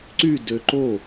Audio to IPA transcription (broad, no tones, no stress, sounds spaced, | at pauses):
ǀ y d ø ǃ o